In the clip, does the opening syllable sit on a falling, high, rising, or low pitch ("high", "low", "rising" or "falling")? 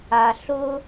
low